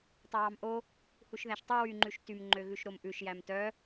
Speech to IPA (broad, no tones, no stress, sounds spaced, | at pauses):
tˤ œ w ɑ m ʔ o | h u ʃ ð æ ʃ tˤ y w y ŋ͡ǃ ʉ ʃ t y m ŋ͡ǃ ø ɣ ʉ ʃ ɾ o m ʔ ʉ ʃ j æ m t œ